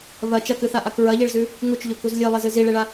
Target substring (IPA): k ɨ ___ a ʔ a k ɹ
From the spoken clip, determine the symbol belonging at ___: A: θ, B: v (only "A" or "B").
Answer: A